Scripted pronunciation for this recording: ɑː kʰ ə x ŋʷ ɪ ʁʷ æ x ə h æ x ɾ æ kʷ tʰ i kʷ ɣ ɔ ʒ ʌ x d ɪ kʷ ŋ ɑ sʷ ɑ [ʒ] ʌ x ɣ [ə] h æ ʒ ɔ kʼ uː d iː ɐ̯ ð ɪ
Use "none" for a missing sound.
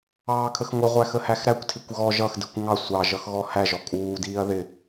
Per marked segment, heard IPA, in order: ʒ, ɔ

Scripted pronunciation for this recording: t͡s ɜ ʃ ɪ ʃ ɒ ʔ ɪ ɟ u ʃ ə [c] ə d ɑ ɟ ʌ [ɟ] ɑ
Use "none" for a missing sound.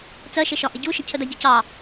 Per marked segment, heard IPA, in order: cʰ, c

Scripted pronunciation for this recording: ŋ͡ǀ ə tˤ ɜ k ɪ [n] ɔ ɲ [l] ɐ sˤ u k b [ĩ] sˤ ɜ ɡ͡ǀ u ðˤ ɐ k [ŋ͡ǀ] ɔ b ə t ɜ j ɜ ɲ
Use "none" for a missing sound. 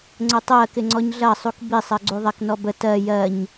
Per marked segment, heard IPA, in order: ŋ͡ǀ, ɮ, i, n

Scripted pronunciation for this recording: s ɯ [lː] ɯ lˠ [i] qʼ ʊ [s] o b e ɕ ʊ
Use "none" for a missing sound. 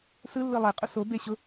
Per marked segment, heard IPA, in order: lː, e, s

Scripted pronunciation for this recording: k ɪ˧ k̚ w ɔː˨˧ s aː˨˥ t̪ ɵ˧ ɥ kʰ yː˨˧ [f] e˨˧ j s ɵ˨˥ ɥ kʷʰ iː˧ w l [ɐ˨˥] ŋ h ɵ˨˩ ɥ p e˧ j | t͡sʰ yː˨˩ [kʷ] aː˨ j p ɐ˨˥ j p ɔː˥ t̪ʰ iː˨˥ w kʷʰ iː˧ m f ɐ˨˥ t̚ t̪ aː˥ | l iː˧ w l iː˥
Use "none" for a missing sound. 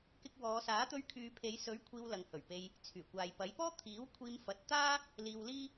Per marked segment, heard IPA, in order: pʰ, ɐ˨, kʷ

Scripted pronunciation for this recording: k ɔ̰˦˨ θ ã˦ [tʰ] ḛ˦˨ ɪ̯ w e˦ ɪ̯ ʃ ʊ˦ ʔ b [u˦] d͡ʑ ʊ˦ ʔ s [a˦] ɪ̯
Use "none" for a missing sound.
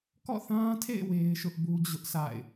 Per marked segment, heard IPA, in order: tʰ, u˦, a̰˦˨

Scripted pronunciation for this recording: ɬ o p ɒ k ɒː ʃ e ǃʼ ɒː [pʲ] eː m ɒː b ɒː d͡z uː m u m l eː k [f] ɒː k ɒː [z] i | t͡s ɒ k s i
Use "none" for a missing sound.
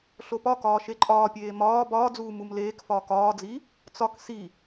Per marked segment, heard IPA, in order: pʲ, f, d͡z

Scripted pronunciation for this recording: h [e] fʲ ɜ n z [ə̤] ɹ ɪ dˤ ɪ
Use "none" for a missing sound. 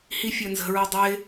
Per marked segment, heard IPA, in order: i, ə̤

